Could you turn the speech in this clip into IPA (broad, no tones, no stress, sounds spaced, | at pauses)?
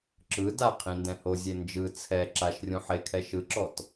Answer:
ǁ ɯ d a qʰ ĩ n d ɛ̃ h o zʲ e n d͡ʒ ɯ t͡sʰ ɛ ǁ a ʃ rʲ ũ ħ e kʰ ɛ ʃ ɯ ǁ ɔ t